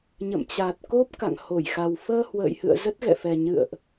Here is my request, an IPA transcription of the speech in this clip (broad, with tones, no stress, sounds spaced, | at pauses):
ɲ ə̰˧˨ m t͡ɕ a˨˩ t̚ k o˦˥ p̚ k a̰˧˨ ŋ h o˧˩ j x a˨˩ w f əː˧ h w ə̰ː˧˨ j h ɨ̰˧˨ ə̯ z ə˦˥ t̚ ɣ ɛ̰˧˨ f ɛ˨˩ ɲ ɨ̰˧˨ ə̯ ʔ